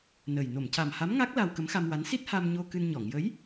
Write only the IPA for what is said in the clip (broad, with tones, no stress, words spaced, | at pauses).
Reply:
nə˨˩j no˨˩˨mca˨˩mha˧˥mŋa˦˥k̚ la˧w kə˧˥mxa˧mwa˧˥n si˦˥t̚ ha˧mɲo˧ kɨ˧nɲɔ˨˩˨ŋ jə˧˥j